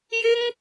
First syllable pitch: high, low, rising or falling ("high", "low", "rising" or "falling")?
high